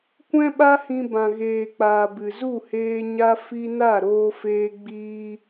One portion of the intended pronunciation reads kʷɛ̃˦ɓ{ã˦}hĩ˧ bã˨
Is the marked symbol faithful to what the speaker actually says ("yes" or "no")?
no